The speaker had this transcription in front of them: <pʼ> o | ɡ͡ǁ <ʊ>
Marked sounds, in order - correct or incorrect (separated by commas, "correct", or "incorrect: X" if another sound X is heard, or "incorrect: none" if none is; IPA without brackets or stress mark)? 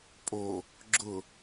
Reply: correct, correct